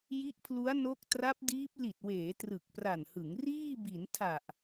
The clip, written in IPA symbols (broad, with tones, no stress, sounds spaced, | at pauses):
j i˦˥ ʔ pʰ l u˦˥ a̯ n o˦˥ k̚ t r a˦˥ p̚ d iː˦˥ p̚ l i˨˩ t̚ w eː˩˦ t r ɯ˨˩ k̚ p r a˨˩ n h ɯ˩˦ ŋ r iː˥˩ b i˩˦ n tʰ a˨˩ ʔ